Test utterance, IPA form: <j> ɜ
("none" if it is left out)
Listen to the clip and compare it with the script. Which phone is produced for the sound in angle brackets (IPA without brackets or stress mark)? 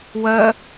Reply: w